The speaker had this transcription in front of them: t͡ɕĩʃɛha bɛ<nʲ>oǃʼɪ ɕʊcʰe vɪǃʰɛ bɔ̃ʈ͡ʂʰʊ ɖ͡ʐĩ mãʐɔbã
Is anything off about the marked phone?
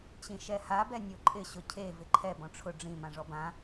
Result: no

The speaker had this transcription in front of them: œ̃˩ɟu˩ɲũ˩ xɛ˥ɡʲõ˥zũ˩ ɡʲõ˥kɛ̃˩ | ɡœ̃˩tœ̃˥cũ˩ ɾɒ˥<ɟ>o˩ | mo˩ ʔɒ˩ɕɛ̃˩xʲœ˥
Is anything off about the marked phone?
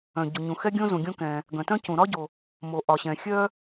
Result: no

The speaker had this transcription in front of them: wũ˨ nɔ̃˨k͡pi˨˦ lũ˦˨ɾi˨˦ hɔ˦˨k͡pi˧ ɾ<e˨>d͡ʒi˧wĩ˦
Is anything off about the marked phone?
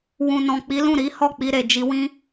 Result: no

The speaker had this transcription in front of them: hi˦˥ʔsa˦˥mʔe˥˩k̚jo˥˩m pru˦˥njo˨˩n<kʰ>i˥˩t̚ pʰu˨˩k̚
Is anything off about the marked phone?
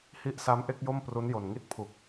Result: yes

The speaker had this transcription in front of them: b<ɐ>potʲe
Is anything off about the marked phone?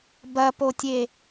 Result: no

